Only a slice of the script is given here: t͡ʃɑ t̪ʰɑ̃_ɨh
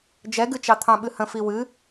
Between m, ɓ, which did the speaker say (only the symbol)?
ɓ